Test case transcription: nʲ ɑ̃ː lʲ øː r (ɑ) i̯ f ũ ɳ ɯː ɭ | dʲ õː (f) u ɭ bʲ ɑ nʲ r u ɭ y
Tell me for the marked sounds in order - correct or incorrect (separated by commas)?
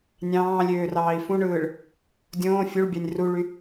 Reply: incorrect, incorrect